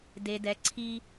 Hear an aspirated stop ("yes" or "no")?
yes